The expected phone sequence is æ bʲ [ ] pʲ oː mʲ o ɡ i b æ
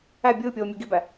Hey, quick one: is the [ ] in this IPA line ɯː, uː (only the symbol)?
ɯː